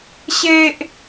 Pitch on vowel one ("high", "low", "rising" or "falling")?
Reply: high